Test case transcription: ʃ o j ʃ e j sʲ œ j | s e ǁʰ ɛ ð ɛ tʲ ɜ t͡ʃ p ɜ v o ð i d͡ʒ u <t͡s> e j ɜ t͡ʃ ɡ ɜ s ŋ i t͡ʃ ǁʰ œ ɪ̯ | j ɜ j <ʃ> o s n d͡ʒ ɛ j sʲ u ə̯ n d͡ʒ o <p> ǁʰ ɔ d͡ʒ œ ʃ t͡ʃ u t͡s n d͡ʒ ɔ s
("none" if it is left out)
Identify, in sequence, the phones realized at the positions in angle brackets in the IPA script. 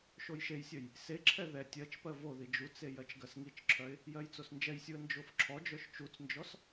t͡s, t͡s, f

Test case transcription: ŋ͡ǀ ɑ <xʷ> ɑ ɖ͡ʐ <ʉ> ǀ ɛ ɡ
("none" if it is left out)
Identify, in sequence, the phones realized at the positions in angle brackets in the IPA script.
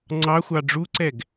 xʷ, u

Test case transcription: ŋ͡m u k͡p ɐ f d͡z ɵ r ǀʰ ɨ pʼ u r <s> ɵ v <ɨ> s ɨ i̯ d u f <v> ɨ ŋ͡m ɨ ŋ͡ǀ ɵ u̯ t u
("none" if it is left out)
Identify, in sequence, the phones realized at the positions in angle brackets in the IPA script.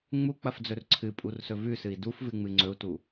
s, ʉ, v

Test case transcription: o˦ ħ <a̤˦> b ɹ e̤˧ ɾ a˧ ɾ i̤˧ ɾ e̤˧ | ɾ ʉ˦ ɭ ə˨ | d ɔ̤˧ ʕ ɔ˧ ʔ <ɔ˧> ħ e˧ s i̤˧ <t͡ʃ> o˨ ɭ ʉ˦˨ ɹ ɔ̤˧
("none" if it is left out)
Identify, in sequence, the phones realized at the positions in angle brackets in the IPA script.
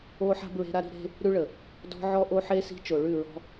a̤˦, o˧, t͡ʃ

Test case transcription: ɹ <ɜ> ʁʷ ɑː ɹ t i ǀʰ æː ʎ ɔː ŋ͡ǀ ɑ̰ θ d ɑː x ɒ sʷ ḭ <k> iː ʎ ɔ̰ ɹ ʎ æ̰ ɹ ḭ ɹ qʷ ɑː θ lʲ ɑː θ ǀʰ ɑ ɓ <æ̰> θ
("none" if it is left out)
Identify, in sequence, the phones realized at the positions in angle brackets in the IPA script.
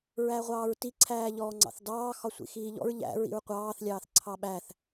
æ, x, æ

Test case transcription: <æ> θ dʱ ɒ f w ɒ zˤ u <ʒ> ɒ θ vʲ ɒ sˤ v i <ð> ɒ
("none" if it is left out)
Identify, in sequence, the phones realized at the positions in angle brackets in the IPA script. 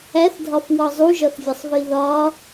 æ, ʒ, ð

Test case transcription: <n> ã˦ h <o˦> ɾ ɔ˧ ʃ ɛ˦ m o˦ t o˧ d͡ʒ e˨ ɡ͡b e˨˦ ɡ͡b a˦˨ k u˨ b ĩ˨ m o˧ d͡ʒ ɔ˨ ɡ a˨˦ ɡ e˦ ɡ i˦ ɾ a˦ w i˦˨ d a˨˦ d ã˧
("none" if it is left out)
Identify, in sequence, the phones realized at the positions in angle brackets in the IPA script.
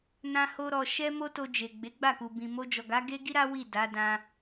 n, o˦

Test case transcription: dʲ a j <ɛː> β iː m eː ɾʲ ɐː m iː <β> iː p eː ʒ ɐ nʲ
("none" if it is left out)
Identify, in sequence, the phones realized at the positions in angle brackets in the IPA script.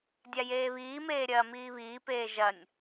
eː, β

